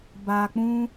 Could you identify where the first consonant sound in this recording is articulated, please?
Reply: labial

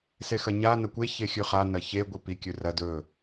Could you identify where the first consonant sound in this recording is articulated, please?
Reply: alveolar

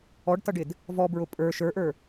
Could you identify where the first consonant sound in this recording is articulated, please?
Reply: retroflex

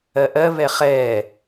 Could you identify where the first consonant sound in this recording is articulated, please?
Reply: glottal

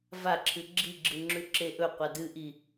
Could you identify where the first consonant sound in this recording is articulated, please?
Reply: labial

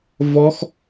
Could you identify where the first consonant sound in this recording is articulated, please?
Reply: labial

